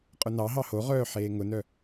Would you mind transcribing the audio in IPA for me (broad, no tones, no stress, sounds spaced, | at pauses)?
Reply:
qʼ ʊ n ɑ ɦ ɑ h o ʁ œː ħ eː ŋ ʊ n œ